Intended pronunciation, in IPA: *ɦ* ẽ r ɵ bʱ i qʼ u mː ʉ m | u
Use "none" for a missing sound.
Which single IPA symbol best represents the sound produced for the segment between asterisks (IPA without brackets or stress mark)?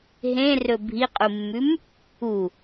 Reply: ɦ